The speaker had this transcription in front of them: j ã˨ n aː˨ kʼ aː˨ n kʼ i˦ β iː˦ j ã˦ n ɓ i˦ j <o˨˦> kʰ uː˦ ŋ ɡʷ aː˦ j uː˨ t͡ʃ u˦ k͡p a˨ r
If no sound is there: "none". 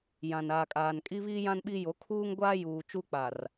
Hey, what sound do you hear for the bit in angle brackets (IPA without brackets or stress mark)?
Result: o˨˦